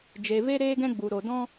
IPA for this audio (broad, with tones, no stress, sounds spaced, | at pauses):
d͡ʒ e˨ v e˦ ɾ eː˦ ɡ ɛ̃˦ ɡ͡b u˨ ɾ o˨ d ɔ̃˦